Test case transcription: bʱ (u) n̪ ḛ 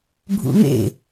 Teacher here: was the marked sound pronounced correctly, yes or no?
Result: no